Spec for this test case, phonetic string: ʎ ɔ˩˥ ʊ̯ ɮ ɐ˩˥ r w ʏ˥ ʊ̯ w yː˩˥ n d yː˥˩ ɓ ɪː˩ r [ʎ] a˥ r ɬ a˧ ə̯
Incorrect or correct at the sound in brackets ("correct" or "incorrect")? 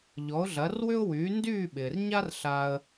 incorrect